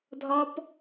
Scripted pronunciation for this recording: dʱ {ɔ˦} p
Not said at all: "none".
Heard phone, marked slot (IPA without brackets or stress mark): ɔ˦